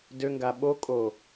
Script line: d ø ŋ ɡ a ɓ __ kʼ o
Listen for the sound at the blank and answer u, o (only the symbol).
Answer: o